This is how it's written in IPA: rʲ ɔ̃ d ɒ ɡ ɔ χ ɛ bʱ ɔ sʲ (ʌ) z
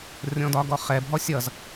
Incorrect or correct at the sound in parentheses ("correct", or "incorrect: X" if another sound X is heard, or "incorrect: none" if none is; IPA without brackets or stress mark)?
correct